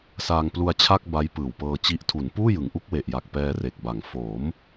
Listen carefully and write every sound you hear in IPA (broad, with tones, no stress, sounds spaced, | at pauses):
s aː˧ ŋ p l u˧ a̯ t͡ɕʰ a˥˩ k̚ b a˦˥ j p ɯː˨˩ w p ɤː˧ t͡ɕ i˦˥ ʔ tʰ u˩˦ n p uː˥˩ j ɯ˩˦ ŋ ʔ u˦˥ k̚ w e˨˩ ʔ j a˨˩ k̚ p ɛː˧ r e˨˩ k̚ b a˩˦ ŋ f oː˩˦ m